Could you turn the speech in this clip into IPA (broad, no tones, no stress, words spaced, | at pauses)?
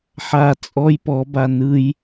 ħa t͡sʼɔj pɔba nɯj